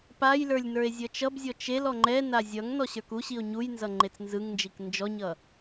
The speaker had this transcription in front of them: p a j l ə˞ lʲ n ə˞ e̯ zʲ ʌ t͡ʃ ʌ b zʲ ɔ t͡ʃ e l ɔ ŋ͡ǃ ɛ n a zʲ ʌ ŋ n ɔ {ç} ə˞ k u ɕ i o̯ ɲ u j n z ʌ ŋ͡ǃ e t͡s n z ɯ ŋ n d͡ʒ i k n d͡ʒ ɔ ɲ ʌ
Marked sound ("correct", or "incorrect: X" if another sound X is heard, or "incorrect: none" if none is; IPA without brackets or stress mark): incorrect: ɕ